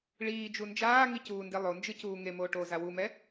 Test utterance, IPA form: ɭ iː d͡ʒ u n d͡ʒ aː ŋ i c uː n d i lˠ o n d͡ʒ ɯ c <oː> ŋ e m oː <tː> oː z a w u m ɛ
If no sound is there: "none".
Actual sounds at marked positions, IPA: uː, ʈ

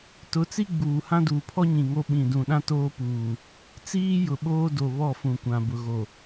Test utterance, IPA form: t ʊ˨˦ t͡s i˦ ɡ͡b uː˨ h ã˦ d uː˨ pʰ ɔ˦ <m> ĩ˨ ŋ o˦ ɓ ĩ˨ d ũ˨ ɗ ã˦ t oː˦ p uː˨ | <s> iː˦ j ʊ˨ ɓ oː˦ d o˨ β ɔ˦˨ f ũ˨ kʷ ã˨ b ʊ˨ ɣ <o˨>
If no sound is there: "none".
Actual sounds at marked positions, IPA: ɲ, t͡s, o˨

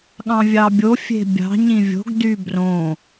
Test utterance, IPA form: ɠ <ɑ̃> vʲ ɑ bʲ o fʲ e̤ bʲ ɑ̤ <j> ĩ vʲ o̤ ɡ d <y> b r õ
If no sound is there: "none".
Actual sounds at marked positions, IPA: ɑ̃, ɲ, y

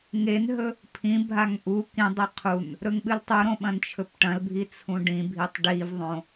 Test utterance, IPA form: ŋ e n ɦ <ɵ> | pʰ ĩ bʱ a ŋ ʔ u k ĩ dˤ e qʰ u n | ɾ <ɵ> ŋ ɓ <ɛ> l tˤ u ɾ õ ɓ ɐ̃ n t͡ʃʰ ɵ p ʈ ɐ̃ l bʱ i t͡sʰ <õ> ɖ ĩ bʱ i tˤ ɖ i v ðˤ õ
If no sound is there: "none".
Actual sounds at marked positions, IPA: ɵ, ɵ, ɨ, ũ

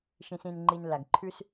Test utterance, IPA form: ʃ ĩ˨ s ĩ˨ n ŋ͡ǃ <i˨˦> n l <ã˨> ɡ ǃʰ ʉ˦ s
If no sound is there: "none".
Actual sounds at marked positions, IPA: i˨, a˨

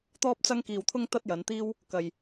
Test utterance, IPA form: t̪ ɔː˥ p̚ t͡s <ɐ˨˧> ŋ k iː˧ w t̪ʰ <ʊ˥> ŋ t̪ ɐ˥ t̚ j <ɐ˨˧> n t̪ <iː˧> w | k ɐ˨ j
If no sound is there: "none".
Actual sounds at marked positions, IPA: ɐ˥, ʊ˥, ɐ˨˧, iː˥

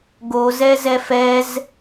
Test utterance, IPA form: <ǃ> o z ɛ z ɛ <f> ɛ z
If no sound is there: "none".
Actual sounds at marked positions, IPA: ɡ, f

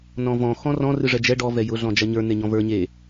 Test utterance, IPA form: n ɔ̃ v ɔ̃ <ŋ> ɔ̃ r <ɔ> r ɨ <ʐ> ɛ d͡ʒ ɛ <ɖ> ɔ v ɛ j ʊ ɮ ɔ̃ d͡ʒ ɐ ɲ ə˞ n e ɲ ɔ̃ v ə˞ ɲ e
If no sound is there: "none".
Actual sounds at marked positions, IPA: x, ɔ̃, ʐ, ɖ

